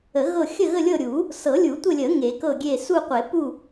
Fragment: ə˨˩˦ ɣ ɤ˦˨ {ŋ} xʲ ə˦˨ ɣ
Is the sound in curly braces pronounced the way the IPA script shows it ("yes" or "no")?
no